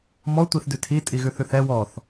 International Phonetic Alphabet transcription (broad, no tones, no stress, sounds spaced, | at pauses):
m ɔ tʷ i θ d ʉ tʰ i tʼ i ɣ ʉ θ ʉ θ ɛ w ɔ θ